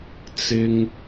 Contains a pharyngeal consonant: no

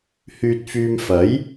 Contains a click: no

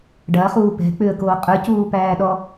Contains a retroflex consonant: yes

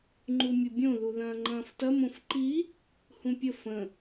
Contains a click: yes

